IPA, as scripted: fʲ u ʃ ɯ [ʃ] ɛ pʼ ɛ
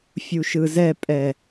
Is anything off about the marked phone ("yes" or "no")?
yes